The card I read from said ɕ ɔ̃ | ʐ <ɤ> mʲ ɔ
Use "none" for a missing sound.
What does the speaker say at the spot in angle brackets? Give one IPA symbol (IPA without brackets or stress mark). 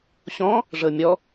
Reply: ɤ